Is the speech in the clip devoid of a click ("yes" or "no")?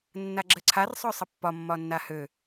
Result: no